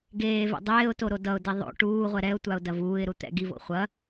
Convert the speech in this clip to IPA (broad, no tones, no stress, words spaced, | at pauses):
ɡeːvɛ̰ dˤeːʊ̯to ɾodʌʊ̯di ðˤo̰ ʈuːʁʷɛ ɾɛʊ̯tʷaʊ̯ dɐvuːɪ̯ɾu t̪ɛ̰ ɡivo̰ χʷɐ